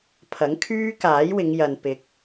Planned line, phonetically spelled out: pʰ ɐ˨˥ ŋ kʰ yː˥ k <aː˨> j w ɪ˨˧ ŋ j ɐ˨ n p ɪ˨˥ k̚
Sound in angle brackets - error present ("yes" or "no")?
yes